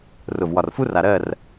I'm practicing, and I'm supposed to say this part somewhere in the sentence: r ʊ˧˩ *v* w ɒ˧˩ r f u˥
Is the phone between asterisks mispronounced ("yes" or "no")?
no